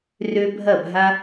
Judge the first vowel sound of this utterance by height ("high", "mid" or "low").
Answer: mid